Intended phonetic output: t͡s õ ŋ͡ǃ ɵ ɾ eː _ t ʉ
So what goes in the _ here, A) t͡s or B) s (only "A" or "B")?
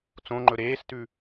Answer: B